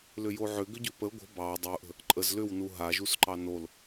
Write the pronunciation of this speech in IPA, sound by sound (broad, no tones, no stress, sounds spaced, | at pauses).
l ʏ j o ʕ ʏ ɡ ʏ ɟ ʏ p ə ɡʷ ə̤ b ɑ dˤ u ʔ ə̤ | ǃʼ ə z l ʏ w n u ɦ a ʒ u s ǃ ɑ n o l